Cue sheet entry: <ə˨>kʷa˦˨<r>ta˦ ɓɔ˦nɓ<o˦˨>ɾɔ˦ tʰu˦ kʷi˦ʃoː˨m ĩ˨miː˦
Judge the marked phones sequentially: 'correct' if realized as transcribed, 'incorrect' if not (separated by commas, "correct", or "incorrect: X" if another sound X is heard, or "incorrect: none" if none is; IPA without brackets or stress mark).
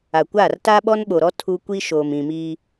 incorrect: a˨, correct, incorrect: o˨